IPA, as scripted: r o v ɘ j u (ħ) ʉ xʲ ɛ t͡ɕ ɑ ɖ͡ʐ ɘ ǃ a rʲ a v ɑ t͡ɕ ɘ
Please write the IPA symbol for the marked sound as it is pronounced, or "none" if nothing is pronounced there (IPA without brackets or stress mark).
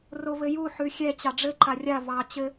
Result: ħ